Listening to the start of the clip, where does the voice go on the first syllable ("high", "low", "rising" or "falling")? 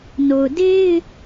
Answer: low